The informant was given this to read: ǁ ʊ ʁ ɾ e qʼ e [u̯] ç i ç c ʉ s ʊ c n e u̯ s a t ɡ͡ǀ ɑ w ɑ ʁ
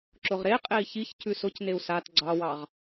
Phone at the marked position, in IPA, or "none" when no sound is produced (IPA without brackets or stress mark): i̯